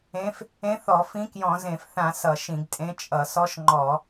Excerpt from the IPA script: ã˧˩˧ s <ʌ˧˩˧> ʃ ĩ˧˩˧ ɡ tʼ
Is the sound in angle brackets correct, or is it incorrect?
correct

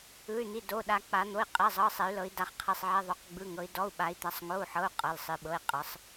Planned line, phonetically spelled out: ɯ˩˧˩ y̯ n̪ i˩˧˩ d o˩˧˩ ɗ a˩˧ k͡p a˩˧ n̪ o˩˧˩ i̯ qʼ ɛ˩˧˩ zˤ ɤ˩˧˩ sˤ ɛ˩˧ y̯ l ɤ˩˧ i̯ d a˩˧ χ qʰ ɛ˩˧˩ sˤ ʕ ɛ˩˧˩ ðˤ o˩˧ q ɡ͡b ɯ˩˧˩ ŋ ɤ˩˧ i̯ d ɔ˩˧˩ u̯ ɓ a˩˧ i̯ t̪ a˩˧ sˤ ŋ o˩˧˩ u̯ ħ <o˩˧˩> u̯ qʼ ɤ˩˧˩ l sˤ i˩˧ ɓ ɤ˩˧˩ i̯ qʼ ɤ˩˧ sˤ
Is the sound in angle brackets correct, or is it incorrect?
incorrect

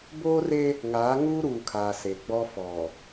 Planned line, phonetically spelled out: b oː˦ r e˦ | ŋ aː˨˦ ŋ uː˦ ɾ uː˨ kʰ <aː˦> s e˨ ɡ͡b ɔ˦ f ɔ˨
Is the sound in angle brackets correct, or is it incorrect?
incorrect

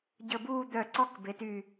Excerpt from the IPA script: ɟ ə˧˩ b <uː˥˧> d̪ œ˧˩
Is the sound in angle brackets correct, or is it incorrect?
correct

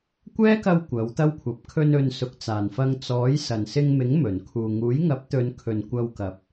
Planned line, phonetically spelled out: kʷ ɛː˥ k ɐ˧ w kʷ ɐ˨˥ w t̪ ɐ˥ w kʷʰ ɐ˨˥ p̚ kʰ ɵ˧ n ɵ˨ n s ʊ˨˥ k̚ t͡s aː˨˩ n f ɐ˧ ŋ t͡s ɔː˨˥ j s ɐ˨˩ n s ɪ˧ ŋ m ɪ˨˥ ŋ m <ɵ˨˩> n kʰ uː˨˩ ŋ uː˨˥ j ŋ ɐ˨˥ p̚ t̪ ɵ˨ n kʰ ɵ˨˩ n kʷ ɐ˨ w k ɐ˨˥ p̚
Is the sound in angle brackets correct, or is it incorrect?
correct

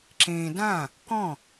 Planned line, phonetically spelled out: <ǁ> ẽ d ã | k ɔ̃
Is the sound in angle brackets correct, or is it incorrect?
correct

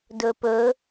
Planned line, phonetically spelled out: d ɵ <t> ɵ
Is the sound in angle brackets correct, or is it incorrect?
incorrect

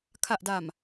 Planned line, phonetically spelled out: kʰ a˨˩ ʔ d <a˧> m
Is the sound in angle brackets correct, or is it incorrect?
incorrect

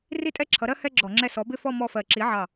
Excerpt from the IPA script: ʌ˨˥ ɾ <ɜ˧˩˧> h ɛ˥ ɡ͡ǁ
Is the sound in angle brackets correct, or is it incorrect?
incorrect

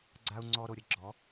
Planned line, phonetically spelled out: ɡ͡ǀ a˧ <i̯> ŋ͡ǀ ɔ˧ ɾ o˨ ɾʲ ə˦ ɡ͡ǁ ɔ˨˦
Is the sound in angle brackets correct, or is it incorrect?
incorrect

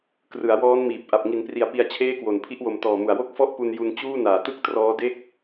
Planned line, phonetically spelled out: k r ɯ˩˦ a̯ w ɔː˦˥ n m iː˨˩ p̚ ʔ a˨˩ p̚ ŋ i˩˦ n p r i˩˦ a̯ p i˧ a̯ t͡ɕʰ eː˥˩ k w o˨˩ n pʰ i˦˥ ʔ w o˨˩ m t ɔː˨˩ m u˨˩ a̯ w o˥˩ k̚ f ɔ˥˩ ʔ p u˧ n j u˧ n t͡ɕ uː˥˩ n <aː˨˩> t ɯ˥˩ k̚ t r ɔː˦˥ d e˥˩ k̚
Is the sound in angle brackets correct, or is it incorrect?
correct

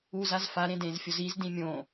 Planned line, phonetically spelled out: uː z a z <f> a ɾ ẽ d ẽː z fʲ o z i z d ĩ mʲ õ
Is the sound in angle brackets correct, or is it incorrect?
correct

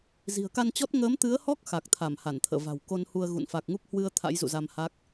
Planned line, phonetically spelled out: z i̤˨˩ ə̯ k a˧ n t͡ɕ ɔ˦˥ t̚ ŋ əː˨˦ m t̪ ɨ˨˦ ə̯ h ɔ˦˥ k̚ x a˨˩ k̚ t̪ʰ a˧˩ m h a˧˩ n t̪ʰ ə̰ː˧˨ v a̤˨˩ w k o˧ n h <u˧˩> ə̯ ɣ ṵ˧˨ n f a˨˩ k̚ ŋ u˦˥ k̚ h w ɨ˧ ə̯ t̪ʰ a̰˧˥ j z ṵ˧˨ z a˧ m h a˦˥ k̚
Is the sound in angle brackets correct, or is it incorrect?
incorrect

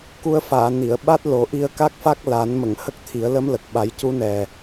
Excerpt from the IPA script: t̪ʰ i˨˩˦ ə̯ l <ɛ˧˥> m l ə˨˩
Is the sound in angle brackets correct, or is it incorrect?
incorrect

